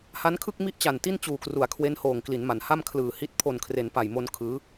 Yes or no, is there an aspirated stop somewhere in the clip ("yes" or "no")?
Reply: yes